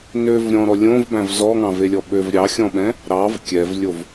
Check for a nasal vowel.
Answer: present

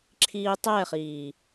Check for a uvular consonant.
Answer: present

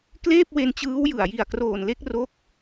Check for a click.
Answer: absent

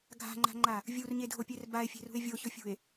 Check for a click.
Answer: present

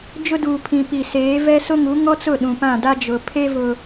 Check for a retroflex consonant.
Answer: absent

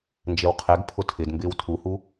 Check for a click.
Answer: absent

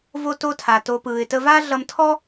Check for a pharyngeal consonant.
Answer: absent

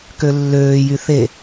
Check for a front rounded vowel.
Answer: present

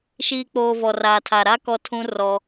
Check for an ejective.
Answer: absent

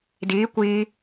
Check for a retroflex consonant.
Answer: absent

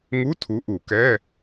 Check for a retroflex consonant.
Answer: absent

